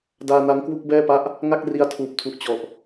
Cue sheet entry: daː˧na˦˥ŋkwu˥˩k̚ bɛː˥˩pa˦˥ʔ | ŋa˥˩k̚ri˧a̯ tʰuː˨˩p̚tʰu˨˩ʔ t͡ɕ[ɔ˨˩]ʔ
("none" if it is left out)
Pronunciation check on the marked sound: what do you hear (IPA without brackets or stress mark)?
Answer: ɔ˨˩